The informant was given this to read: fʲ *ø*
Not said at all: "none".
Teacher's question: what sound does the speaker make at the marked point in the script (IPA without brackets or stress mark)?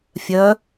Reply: œ